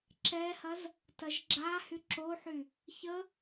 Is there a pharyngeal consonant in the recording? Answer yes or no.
yes